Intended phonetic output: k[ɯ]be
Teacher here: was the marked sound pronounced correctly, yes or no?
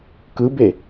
yes